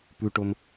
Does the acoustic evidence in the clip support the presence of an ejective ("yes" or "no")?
no